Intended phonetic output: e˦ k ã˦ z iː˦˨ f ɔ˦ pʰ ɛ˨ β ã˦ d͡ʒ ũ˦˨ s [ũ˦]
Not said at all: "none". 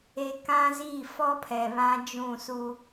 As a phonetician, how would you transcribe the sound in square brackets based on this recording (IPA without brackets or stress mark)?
u˦